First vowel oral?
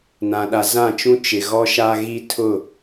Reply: no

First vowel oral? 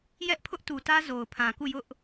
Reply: yes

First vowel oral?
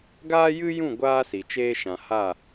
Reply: yes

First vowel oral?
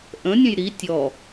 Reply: no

